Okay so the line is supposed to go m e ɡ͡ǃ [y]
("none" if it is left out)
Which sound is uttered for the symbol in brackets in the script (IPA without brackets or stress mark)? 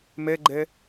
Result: e